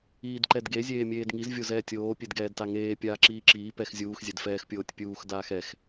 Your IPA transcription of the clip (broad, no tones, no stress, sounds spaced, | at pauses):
iː d ǃ ɛ d ɡ e zʲ eː mʲ eː d ŋ i z vʲ o z ɛː tʲ oː pʲ e d ɡ ɛː d t a ŋ eː pʲ aː ǁ iː ǁ iː p ɛ x zʲ uː x zʲ ɛ d f ɛː x pʲ oː tʲ pʲ uː x d aː x ɛ x